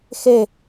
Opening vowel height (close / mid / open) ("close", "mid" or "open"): mid